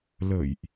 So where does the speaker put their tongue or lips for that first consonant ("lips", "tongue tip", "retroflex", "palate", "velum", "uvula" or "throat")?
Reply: tongue tip